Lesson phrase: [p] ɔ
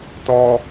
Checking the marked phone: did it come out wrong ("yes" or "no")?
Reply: yes